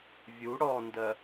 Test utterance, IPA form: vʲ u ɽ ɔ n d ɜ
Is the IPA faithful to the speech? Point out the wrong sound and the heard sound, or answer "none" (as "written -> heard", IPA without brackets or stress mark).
none